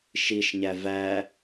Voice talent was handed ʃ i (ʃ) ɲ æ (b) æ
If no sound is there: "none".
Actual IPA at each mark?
ʃ, v

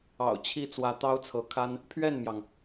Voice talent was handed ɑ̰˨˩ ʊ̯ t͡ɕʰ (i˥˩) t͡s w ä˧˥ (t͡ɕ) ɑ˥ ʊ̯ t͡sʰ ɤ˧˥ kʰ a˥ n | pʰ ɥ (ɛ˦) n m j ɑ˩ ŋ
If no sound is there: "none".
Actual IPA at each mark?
i˥˩, t̪, ɛ˥˩

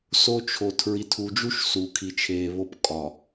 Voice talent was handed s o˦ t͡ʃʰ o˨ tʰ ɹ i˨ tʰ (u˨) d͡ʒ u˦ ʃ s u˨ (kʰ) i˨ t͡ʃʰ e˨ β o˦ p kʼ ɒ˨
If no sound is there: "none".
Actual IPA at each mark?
u˨, kʰ

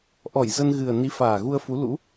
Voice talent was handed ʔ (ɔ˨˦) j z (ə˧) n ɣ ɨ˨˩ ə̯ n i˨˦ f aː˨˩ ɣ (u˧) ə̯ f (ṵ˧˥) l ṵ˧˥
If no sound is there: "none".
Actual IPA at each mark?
ɔ˧˩, ə˧, u˧, u˨˦

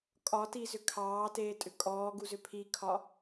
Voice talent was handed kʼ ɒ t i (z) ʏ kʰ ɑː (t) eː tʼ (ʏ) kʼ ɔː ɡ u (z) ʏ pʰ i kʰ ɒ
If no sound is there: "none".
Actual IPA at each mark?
z, t, ʏ, z

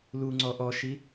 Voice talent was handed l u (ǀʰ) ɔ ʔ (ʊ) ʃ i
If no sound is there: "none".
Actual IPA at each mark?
ŋ͡ǀ, ɔ

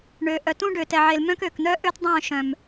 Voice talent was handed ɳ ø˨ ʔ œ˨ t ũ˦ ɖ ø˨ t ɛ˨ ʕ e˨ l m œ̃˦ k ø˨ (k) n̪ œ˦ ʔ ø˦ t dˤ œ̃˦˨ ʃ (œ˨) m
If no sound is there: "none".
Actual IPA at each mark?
k, œ̃˨

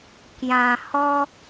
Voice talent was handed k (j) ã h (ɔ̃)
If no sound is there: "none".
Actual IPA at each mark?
j, ɔ

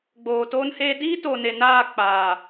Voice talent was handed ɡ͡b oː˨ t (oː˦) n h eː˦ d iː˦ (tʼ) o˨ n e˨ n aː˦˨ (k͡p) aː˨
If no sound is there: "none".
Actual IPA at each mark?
oː˦, t, k͡p

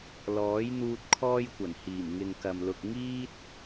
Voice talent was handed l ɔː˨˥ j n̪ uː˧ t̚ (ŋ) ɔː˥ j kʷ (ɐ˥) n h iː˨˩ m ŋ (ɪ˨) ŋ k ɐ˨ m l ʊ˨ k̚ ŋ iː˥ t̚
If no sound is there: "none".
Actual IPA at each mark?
kʰ, ɐ˨˩, ɪ˨

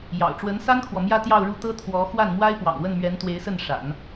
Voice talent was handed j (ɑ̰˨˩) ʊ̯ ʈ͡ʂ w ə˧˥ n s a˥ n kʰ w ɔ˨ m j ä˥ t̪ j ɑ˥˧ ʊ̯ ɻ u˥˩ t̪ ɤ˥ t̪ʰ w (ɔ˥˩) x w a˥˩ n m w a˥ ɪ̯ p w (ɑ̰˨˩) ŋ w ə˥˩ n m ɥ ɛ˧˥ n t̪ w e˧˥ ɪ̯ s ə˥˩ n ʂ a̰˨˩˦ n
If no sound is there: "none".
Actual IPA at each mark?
ɑ̰˨˩, ɔ˧˥, ɑ̰˨˩

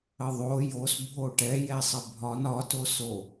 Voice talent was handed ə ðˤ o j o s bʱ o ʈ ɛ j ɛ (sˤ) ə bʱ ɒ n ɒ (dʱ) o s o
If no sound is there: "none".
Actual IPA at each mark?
sˤ, t

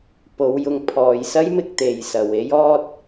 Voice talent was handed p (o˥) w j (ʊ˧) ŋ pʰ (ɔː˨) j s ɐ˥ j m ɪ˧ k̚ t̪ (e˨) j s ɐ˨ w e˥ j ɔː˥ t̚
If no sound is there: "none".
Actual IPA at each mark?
o˨˧, ʊ˨˧, ɔː˨, e˨

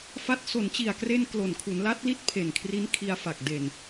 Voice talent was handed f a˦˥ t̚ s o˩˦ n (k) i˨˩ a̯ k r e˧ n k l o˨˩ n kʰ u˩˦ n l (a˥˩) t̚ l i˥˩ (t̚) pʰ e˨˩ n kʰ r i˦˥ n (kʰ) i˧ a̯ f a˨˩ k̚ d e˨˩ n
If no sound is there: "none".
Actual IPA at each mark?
t͡ɕ, a˦˥, t̚, kʰ

